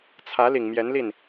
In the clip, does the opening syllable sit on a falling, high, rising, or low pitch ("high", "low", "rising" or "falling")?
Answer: rising